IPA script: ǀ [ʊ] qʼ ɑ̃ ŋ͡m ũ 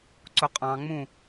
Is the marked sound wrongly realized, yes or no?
no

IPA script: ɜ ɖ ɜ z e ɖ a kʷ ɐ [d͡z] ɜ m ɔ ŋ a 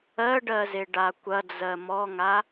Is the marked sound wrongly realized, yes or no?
no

